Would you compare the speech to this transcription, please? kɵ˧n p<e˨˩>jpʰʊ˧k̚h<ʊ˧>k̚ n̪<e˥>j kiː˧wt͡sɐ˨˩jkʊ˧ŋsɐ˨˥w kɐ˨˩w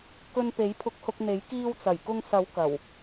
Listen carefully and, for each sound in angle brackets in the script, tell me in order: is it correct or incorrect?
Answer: incorrect: e˨˥, correct, incorrect: e˨˥

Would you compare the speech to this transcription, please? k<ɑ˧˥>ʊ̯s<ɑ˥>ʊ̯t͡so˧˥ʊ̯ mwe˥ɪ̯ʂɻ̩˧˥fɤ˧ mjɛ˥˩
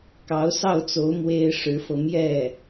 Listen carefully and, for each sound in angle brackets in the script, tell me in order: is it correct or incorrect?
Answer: correct, incorrect: ɑ˥˩

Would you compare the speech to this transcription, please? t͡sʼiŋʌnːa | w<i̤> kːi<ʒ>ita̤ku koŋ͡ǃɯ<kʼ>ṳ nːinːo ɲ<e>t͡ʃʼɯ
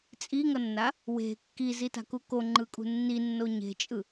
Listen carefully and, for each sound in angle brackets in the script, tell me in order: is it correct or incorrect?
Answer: incorrect: e̤, incorrect: z, correct, incorrect: e̤

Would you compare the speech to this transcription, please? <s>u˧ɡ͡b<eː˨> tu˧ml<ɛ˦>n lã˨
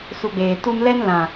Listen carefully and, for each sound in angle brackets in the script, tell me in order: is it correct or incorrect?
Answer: correct, correct, correct

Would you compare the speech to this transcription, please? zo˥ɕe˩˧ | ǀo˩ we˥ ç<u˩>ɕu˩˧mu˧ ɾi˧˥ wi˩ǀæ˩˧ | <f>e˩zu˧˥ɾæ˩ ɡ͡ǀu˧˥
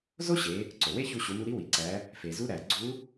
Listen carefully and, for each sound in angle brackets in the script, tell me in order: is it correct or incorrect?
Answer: incorrect: u˧, correct

